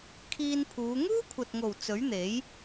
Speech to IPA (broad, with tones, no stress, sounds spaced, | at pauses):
kʰ iː˧ n pʰ uː˨˧ ŋ uː˥ kʷʰ ɐ˨ t̚ ŋ o˨˩ w t͡s ɵ˨˥ ɥ n̪ e˨˥ j